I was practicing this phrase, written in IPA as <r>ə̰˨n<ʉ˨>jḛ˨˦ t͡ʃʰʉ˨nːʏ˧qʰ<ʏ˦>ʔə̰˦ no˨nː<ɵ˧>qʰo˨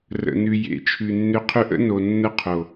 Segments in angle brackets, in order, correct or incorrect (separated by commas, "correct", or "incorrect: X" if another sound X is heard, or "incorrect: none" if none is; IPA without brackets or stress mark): correct, correct, correct, incorrect: ə˧